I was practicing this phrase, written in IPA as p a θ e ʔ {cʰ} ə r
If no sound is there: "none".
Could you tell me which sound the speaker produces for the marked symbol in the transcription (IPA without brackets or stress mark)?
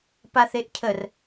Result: cʰ